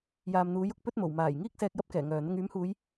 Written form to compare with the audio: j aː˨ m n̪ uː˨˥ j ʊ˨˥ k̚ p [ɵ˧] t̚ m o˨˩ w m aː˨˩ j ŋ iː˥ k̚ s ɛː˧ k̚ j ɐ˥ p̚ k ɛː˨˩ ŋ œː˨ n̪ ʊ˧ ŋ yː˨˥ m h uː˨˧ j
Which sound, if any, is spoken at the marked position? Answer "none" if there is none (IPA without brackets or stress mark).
ɵ˥